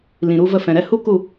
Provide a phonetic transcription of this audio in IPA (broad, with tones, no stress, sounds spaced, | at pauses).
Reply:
l ĩ˨ ɾ u˧ v ə˧ f ɛ̃˨ ɾ ɛ˧ h u˦ k u˦˨